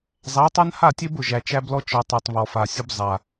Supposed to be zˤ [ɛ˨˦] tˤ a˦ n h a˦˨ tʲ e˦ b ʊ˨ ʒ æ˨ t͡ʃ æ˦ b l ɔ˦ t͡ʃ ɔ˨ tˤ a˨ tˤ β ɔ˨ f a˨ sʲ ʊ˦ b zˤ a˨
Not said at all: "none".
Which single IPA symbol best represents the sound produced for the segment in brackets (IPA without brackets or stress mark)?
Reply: æ˨˦